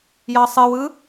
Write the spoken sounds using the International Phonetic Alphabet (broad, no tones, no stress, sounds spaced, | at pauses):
j ɑ sˤ ɨ w ɯ